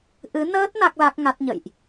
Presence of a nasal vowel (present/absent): absent